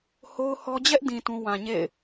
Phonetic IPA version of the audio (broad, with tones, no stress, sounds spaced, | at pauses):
h o˦ ʊ̯ h ɔ˦ d͡ʑ ɛ˦ ʔ d ĩ˨ t ũ˦ w ã˨ ɲ ḛ˦˨ ɪ̯